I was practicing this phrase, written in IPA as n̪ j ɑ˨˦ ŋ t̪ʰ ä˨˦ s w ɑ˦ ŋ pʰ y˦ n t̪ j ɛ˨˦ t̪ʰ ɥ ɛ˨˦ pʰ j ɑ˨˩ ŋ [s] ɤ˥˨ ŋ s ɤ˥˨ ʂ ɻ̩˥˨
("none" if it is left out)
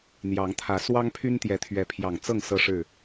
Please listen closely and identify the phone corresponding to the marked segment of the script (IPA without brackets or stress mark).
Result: t͡s